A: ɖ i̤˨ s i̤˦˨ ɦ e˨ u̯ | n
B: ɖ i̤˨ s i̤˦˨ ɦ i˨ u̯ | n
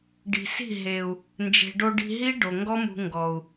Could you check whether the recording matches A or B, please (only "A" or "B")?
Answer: A